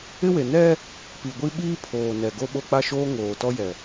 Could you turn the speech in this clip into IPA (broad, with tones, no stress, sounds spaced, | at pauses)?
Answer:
ɪ˦ w e˨ n ɛ˦ | p i˨ ɡʷ i˦ ɓ iː˦ pʰ oː˨ n ɛ˨ ɡ o˦ ɓ o˦ k͡p a˦˨ ʃ oː˦ ŋ oː˨ t ɔ˦ j ɛ˨